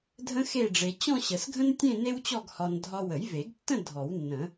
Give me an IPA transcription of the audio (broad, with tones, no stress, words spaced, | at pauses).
dʱə̃˥xe˥˧ɖ͡ʐe˧ t͡ɕɔ̃˥˧ɕə˨˩˦sɡʱə̃˥ntʲẽ˥˧ ne˥wt͡ɕɔ˥˧ɡhɒ˧n dʱɒ˧wə˨˩˦jve˨˩˦ɡtːə̃˥˧ dʱɔ˨˩˦wnːə̃˨˩˦